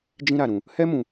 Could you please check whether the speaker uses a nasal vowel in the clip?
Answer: yes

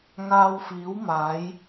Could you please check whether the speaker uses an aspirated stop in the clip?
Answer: no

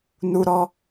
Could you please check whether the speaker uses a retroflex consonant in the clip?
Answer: no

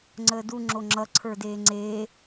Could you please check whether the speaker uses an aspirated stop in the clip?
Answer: yes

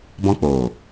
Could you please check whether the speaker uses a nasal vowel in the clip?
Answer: yes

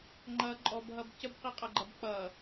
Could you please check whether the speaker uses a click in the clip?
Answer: yes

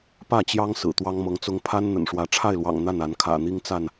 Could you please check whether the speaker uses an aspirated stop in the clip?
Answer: yes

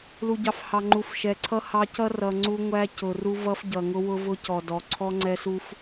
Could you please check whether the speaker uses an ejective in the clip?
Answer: no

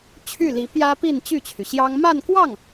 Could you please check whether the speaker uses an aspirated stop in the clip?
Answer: yes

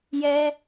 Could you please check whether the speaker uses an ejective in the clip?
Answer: no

